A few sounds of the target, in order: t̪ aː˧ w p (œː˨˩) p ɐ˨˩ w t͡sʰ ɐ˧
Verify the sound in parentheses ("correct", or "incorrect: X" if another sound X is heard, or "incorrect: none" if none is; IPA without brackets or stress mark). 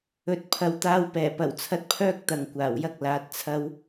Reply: incorrect: ɛː˨˩